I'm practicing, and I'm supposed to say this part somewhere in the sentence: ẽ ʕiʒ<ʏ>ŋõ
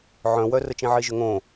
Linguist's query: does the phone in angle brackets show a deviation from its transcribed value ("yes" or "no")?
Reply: no